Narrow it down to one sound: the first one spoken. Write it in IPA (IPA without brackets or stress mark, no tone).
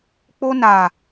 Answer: k͡p